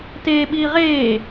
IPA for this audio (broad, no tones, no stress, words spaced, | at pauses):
teː ɓiːʁeː